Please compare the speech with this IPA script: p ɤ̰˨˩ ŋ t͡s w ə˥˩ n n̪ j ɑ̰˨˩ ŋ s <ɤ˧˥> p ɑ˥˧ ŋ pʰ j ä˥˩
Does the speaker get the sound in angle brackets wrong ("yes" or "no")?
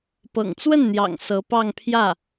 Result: no